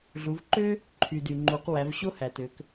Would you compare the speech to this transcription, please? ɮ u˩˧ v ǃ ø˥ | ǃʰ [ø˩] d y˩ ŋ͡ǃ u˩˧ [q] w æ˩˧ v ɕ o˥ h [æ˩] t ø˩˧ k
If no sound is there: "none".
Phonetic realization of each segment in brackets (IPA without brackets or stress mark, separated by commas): y˩, q, æ˩